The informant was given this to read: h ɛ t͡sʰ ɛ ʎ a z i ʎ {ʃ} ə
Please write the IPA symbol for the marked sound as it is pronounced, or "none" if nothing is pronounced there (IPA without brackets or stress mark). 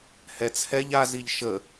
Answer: ʃ